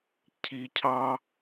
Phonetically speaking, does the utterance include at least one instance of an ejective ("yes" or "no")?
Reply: no